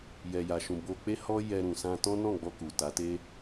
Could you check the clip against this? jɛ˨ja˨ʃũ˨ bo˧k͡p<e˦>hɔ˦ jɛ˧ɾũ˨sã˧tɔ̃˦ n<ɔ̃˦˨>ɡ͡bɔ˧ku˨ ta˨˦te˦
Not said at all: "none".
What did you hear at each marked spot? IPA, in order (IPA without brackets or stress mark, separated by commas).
e˦, ɔ̃˦˨